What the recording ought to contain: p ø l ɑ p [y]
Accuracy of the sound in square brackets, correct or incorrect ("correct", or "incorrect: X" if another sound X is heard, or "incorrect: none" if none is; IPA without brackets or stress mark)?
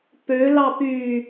correct